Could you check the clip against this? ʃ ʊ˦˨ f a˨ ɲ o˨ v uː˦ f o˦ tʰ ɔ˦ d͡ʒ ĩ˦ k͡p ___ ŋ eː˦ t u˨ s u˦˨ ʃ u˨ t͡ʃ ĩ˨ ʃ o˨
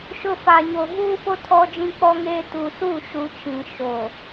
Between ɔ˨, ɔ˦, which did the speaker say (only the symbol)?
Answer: ɔ˦